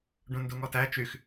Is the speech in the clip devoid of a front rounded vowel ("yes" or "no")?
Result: no